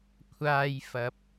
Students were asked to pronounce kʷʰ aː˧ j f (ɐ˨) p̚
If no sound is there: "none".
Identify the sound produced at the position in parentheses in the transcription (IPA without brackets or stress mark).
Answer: ɐ˨˥